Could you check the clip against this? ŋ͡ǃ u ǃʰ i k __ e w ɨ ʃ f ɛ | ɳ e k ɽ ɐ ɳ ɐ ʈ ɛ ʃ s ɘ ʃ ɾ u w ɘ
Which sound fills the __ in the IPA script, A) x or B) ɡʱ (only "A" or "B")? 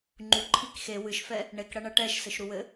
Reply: A